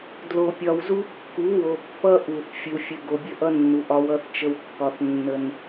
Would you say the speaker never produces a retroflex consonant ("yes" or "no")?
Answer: yes